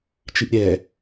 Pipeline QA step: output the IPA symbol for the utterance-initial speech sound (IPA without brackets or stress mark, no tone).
t͡ʃ